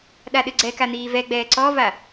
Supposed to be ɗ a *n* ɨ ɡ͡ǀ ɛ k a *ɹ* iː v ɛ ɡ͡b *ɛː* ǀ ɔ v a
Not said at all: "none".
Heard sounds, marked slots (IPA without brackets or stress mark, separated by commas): ɗ, n̪, ɛː